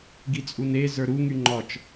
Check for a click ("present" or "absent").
present